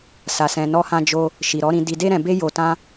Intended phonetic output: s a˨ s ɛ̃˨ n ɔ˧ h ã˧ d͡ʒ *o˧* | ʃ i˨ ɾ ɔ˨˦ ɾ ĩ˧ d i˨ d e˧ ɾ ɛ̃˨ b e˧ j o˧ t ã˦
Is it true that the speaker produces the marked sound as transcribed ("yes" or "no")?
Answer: yes